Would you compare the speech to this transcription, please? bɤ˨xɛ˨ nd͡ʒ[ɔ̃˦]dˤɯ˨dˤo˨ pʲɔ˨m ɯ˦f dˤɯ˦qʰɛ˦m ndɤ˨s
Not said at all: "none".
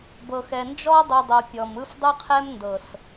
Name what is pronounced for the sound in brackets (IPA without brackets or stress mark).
ɔ˦